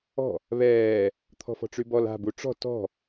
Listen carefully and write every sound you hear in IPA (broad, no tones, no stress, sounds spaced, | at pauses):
ɔ̤ | β ɛː | t̪ʰ ɔ̤ f ɔ̤ ʈ͡ʂ y b ɔ l a̤ b u ʈ͡ʂ ɔ̤ t ɔ̤